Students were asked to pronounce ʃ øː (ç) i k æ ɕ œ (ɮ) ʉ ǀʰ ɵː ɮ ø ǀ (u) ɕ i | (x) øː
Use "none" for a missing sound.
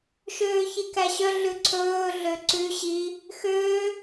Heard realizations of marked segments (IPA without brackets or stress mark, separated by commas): ç, ɮ, ʉ, x